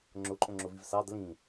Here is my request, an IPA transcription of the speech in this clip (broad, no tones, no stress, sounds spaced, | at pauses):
ŋ͡ǁ ʊ ǃʼ õ ŋ͡ǁ ʊ v i v s ɑ d l ĩ